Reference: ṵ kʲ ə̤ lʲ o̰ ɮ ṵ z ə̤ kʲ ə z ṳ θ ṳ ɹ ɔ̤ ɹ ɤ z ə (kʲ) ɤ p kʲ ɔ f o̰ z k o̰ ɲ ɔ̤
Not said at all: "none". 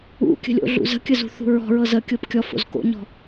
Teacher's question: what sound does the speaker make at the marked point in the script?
kʲ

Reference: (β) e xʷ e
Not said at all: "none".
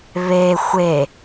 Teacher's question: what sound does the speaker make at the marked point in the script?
β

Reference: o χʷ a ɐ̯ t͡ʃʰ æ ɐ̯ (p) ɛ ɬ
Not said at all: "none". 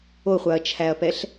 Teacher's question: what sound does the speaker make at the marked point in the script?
p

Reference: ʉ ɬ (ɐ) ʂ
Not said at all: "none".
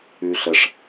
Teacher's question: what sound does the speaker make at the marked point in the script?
ə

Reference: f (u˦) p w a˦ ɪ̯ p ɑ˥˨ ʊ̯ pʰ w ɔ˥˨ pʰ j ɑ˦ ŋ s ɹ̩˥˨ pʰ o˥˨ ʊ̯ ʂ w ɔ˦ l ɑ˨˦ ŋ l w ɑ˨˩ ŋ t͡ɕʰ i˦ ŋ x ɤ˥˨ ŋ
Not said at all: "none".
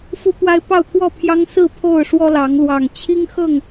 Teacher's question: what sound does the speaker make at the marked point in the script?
u˦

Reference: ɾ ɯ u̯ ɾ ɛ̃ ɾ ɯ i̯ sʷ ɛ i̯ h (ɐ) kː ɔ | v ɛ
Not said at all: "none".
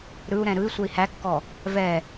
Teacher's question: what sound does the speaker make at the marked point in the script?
æ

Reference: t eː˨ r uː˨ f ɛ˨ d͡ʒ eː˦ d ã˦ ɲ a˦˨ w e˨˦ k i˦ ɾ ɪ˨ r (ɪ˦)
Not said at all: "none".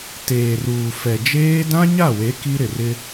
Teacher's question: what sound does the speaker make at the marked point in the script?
ɪ˦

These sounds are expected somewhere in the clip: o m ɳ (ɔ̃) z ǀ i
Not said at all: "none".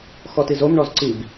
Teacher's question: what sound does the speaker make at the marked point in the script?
ɔ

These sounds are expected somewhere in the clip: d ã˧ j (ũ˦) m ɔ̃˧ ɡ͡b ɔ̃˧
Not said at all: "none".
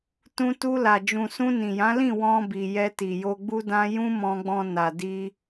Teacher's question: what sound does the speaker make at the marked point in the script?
ũ˦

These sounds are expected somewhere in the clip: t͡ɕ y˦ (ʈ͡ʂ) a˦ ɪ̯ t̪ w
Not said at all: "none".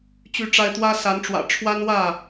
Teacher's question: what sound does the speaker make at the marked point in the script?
ʈ͡ʂ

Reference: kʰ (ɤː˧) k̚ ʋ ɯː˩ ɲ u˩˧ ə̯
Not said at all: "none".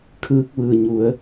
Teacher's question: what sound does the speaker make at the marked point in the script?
ɯː˧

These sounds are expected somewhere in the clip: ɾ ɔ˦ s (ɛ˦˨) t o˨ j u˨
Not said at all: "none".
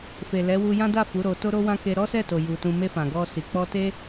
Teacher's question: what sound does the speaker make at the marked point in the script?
ɛ˦˨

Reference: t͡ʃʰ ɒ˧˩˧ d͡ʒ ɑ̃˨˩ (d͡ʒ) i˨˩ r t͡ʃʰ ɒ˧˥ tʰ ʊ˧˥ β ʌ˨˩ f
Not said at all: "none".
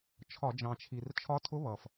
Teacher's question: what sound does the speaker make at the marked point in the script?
t͡ʃʰ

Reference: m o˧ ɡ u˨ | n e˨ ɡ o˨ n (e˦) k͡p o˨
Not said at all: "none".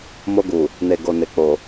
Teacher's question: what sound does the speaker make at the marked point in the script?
e˨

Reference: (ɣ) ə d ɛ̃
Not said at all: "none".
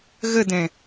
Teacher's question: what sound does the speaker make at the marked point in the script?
ɣ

